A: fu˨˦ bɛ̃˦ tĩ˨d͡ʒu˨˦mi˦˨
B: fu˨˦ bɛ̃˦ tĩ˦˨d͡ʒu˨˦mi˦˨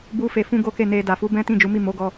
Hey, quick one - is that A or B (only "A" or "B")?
B